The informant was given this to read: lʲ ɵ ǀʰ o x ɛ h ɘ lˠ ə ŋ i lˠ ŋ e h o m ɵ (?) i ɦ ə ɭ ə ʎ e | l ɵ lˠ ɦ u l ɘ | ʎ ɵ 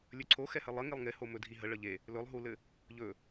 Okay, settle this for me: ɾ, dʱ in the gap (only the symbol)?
dʱ